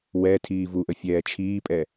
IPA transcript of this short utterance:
wɛ tʰiːvuʔə fʲɛːt͡ʃʰiːpʼɛ

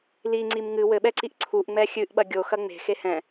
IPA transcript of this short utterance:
liŋ͡ǀim ŋɨ wɘɓɛǀiʔ ǀʰuʔŋ͡mɛ xʲɨʔɓɐ ɡʲoxɐ ŋ͡me̤xe hɛ̃

